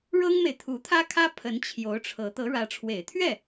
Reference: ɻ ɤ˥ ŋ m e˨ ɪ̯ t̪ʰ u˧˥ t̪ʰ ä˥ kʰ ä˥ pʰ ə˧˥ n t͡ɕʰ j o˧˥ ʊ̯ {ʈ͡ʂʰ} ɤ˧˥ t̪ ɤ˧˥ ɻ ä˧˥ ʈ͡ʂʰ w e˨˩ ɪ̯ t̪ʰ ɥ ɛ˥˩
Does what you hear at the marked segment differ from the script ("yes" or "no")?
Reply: no